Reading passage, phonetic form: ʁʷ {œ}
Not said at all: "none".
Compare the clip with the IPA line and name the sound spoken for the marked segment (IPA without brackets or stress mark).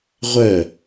œ